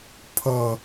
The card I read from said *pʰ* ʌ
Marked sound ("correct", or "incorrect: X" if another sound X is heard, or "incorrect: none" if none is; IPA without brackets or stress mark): correct